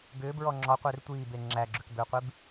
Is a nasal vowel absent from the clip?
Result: yes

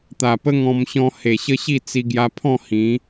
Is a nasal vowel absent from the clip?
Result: no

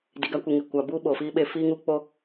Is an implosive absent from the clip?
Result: no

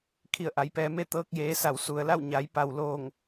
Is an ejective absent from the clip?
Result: yes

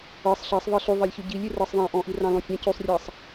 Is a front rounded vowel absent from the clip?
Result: no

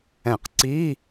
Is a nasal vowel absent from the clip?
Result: no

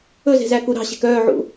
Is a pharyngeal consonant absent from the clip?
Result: no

